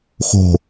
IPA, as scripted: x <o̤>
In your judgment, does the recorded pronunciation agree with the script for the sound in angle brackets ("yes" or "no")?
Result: yes